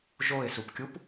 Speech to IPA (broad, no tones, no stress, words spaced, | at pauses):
ʒoɪ̯supkʲup